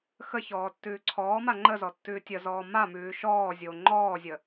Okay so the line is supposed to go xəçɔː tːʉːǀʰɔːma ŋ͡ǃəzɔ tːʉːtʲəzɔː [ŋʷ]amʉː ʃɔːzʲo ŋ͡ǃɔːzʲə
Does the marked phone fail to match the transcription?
yes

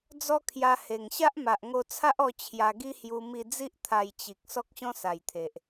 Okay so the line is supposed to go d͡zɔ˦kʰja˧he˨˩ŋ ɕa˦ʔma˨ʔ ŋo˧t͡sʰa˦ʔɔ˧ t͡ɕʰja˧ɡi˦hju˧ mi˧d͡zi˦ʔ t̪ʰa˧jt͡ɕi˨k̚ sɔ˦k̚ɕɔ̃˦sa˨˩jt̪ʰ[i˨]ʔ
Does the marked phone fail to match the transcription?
yes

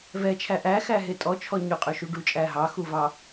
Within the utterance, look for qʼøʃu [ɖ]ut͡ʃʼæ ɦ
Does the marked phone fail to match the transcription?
no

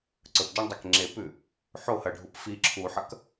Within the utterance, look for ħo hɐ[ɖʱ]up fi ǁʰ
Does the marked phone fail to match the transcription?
no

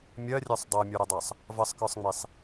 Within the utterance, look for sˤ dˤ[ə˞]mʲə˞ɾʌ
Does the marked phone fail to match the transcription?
yes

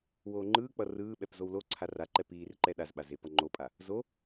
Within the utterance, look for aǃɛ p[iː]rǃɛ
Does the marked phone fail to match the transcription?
no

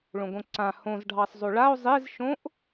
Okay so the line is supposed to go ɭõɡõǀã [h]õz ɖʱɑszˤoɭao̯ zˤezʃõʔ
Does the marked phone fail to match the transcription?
no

